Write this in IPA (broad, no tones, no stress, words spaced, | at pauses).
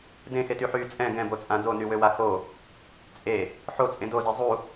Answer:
dẽxetyħyː t͡sʼɛ̃ ɡɛ̃bot͡sʼã donywøwa xo | t͡sʼe | ħot͡sʼẽ doze zˤu